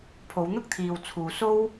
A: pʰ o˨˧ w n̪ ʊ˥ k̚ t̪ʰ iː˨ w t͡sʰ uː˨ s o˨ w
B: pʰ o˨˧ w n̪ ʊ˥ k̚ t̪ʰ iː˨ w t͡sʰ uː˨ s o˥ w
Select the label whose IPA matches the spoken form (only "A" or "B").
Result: B